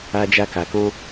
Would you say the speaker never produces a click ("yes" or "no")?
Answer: yes